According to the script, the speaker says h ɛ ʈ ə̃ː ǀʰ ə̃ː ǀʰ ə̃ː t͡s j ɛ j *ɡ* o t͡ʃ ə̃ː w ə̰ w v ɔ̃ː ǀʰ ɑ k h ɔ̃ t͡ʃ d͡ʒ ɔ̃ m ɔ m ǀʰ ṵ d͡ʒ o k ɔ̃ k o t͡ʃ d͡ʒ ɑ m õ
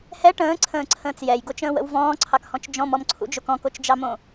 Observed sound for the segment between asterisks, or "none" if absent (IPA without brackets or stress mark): ɡ